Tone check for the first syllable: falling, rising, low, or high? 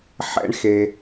high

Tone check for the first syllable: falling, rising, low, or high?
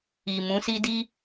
low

